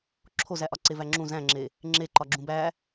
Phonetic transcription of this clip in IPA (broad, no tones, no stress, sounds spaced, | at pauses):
ǁʰ o z æ ʔ ɒ ǀ e v æ ŋ͡ǁ ũ z æ̃ ŋ͡ǁ e | ŋ͡ǁ e ǃ ɒ ɡ͡ǁ ũ b æ